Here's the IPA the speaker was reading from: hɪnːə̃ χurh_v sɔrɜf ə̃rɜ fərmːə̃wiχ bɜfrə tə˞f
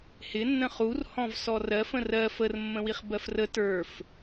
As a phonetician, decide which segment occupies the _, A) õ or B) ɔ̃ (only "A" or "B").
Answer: B